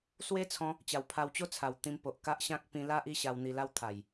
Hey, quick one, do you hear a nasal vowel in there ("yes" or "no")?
yes